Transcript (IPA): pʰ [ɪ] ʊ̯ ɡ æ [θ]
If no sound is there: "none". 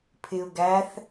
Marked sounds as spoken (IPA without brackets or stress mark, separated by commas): ɪ, θ